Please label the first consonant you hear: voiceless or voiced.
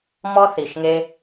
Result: voiced